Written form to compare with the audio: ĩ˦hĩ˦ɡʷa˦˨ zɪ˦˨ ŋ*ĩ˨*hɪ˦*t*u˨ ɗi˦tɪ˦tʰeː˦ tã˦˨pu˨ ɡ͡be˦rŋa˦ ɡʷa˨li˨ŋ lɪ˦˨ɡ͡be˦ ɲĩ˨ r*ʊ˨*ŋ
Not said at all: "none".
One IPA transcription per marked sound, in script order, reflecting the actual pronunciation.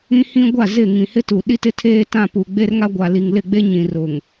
ĩ˨, t, ʊ˨

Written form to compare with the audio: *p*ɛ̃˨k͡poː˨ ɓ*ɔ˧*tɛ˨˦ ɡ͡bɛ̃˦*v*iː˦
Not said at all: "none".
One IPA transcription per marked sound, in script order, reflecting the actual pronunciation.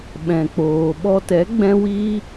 ɓ, ɔ˧, w

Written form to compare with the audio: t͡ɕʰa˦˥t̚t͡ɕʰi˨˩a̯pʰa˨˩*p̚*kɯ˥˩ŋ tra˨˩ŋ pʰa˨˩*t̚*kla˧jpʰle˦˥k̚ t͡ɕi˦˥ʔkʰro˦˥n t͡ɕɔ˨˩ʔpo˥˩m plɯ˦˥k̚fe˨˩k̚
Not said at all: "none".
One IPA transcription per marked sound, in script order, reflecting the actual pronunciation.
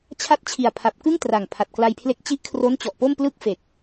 p̚, t̚

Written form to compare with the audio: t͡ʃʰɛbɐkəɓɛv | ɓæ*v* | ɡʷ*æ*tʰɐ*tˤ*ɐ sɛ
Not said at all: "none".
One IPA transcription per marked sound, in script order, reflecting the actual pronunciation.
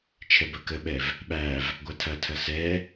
v, a, tʰ

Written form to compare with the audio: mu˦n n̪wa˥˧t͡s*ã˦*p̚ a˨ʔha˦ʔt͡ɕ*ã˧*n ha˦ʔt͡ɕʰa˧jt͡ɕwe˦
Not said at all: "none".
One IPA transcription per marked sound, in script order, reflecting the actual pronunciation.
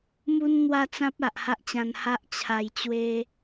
ã˦, ã˧

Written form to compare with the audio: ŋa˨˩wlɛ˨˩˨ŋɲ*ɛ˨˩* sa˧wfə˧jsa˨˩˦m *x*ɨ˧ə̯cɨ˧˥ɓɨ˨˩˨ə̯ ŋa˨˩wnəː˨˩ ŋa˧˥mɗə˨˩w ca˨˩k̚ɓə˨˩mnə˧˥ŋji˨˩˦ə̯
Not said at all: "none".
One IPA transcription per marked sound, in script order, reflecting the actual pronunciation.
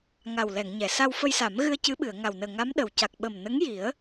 ɛ˨˩˨, ɣ

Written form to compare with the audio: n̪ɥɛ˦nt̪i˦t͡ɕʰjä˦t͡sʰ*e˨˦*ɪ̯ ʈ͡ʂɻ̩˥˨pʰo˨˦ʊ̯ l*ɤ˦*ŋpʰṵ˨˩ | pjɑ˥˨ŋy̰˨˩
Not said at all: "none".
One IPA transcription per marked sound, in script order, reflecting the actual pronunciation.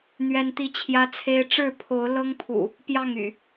e˦, ɤ˦

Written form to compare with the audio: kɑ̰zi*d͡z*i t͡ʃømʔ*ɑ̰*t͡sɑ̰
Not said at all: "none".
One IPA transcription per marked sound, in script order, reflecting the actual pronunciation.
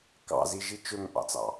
ʒ, ɑ̰

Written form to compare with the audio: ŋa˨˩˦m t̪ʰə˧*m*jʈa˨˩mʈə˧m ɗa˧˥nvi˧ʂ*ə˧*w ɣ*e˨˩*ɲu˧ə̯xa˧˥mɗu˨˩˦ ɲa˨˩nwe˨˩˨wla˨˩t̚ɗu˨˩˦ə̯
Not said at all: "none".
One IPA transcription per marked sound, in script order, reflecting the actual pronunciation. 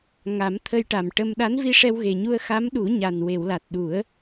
none, ɛ˧, e˨˩

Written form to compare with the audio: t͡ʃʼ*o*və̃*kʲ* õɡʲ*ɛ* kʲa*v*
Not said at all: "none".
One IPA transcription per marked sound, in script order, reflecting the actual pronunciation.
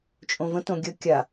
õ, t, ə, none

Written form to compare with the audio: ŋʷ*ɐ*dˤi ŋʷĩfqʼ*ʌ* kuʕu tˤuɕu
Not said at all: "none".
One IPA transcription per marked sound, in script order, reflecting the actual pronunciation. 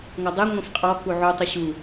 ɐ, ɔ

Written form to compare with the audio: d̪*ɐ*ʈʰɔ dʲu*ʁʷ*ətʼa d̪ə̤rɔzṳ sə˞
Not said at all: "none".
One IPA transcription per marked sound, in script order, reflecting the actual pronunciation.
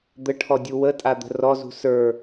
ə, w

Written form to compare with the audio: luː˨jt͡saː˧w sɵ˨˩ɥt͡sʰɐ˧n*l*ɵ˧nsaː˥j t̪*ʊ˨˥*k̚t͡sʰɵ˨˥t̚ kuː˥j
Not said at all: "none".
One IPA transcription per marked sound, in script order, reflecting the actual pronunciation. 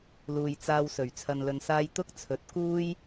l, ʊ˥

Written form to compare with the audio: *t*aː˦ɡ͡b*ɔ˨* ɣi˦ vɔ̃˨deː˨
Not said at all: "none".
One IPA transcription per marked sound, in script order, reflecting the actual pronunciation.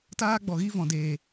t, ɔ˨

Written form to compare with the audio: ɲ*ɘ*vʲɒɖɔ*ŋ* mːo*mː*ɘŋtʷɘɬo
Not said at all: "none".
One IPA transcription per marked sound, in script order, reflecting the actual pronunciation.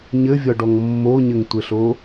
ɘ, ŋ, ɲ

